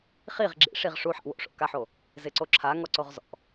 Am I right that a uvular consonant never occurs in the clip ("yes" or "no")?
no